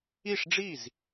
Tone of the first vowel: falling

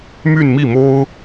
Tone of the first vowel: falling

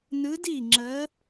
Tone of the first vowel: rising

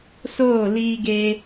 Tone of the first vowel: falling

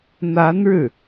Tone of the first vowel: rising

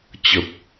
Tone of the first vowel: low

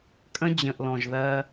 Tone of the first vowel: high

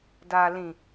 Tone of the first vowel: low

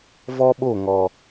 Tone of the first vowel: high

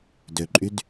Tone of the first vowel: low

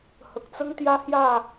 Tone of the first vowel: low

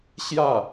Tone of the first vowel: falling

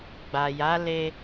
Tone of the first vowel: low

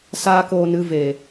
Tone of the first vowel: high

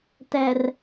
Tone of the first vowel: low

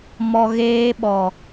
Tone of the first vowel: low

